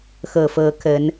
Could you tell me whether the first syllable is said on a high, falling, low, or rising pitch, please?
low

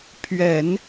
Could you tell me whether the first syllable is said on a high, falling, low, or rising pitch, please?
low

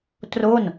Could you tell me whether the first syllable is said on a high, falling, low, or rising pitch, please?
falling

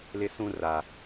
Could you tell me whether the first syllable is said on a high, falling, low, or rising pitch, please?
high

